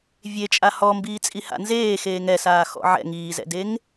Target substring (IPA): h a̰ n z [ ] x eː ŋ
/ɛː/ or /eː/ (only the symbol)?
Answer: eː